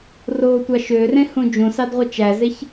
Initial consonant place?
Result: alveolar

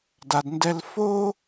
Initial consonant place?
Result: alveolar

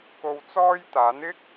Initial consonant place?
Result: velar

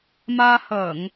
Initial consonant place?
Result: labial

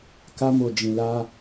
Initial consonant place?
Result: velar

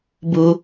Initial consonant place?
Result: labial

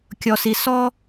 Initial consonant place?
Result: velar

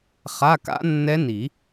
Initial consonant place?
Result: uvular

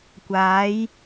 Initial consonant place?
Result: velar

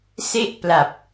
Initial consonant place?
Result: alveolar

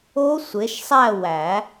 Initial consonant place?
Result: alveolar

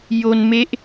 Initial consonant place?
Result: palatal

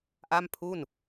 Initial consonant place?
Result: glottal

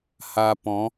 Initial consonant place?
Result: glottal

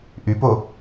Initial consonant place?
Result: glottal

